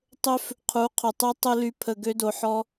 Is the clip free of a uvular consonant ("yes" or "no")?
no